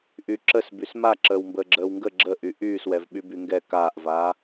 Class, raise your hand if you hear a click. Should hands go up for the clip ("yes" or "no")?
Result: yes